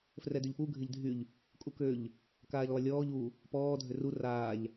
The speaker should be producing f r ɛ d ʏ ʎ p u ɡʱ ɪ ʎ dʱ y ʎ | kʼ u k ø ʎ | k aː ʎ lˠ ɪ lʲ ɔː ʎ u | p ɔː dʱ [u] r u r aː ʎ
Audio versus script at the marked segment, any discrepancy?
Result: yes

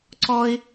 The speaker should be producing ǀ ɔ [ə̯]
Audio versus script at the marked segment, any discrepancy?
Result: yes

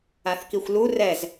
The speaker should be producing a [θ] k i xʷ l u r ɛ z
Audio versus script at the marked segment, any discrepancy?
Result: no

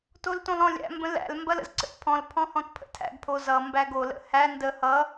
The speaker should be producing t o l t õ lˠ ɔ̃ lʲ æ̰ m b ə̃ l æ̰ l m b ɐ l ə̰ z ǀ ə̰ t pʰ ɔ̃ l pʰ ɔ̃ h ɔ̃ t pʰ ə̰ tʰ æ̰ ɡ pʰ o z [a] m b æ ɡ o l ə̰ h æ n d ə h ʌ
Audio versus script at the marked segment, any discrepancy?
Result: yes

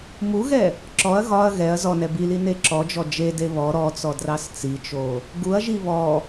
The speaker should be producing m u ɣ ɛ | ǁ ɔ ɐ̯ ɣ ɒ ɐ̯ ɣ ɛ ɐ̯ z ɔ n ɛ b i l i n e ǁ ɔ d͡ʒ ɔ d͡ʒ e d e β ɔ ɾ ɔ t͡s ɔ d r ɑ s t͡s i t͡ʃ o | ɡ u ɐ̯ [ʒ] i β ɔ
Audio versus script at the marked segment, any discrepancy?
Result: no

